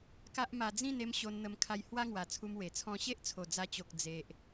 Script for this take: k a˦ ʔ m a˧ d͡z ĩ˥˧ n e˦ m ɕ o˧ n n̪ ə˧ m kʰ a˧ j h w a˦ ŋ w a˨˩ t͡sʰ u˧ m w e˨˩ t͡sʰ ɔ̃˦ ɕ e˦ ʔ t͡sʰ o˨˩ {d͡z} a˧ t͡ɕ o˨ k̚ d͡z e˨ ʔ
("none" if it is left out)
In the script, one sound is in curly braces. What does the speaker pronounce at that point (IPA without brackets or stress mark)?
d͡z